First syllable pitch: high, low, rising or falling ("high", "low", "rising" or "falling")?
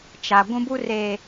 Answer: low